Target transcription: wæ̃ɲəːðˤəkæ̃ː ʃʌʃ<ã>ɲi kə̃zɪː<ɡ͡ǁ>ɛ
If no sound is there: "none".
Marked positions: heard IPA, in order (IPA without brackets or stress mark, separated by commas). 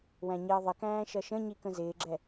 ə̃, ɡ͡ǁ